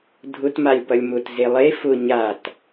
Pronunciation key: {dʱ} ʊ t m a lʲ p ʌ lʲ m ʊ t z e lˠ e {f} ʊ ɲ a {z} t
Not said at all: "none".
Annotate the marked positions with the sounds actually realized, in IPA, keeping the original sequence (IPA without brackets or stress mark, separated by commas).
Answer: dʱ, f, none